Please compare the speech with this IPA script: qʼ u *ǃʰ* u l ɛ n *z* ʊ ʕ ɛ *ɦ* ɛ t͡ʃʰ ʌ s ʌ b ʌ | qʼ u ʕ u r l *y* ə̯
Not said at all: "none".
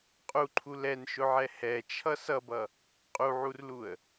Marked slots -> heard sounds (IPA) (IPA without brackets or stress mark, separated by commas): ǃʰ, ʃ, h, u